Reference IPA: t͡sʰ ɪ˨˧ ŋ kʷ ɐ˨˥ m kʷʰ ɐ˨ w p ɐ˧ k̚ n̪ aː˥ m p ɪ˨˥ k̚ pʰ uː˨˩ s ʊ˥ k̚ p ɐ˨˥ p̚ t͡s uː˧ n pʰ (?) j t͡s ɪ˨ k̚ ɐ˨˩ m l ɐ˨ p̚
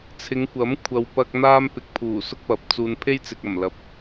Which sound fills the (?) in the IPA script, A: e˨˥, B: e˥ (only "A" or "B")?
B